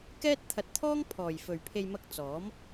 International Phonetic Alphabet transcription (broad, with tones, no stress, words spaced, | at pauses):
kɛː˥t̚t̪ʰɐ˧t̚t̪ʰɔː˥ŋpʰɔː˨j fɵ˨ɥpʰe˧jmɐ˧k̚ t͡sɔː˨˥m